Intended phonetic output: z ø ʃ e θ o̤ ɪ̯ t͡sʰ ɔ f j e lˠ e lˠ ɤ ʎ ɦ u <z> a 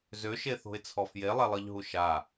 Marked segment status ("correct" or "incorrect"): incorrect